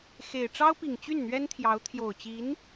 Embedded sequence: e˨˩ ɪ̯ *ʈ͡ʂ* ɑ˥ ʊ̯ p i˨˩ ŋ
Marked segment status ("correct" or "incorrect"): correct